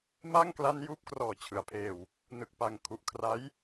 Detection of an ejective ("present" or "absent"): absent